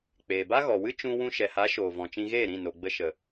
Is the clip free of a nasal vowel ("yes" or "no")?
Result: no